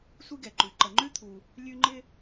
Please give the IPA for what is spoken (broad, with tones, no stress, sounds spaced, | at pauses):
sʷ i˦ ɡ ɛ˩ ǃ ʉ˩ ǃ ə˩ ŋ͡ǃ ʉ˥ t̪ʰ u˩ | lʲ ʉ˦ ŋ͡ǃ ɪ˦